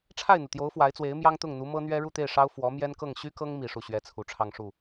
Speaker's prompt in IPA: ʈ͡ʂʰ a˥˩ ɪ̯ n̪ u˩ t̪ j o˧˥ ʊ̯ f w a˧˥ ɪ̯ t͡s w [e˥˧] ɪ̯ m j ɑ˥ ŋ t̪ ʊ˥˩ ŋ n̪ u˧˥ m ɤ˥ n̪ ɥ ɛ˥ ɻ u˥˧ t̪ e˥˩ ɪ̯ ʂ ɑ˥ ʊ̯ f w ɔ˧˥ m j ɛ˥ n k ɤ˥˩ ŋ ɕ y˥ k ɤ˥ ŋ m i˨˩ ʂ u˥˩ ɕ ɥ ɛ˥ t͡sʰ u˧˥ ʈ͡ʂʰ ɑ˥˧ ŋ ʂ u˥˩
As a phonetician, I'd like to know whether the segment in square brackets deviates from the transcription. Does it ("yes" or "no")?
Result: yes